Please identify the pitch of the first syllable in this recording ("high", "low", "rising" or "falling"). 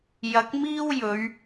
rising